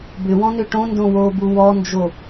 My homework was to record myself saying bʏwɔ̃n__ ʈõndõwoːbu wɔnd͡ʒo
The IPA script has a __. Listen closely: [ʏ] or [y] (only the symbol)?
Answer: ʏ